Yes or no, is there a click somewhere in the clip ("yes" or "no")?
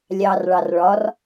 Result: no